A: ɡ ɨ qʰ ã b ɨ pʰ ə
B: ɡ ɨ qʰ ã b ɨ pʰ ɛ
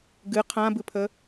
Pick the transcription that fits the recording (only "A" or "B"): A